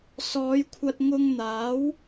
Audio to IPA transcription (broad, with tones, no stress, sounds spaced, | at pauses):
s ɔː˨˧ j kʷʰ ɐ˧ t̚ ŋ ʊ˧ ŋ n̪ aː˨˥ w